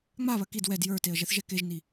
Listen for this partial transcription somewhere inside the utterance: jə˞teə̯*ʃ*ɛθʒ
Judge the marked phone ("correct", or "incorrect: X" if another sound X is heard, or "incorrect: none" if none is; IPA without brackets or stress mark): incorrect: ʒ